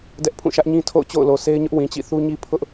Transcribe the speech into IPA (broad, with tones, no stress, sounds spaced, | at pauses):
d ɛ˦ ʔ pʰ ũ˦˨ ʃ ä˦ ʔ ɲ ĩ˦ tʰ o̰˦˨ ʊ̯ t͡ɕ o̰˦˨ ʊ̯ l o˨ s e˦ ɪ̯ ɲ ʊ˦ ʔ w ĩ˨ t͡ɕ ḭ˦˨ θ u˦ ɲ i˦ pʰ ʊ˦ ʔ